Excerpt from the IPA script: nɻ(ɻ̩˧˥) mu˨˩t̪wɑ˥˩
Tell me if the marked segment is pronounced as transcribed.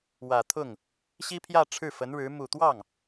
yes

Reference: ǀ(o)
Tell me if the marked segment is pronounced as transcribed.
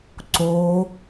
yes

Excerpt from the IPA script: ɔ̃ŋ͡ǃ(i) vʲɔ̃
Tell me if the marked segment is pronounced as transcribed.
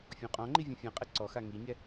yes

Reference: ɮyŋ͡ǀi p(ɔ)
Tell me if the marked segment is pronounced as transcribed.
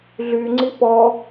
yes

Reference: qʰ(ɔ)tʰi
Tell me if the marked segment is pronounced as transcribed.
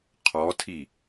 yes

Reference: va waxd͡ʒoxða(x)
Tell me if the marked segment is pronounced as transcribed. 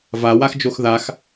yes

